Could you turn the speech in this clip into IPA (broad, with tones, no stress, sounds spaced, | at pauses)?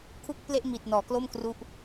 kʰ u˥˩ k̚ p l e˥˩ ʔ m i˨˩ t̚ n ɔː˩˦ k l o˥˩ m k r u˦˥ ʔ